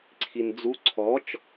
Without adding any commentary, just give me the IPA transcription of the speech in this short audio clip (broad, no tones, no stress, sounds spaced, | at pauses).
ǀʰ i n d͡z u ǀʰ ɔ t͡ʃ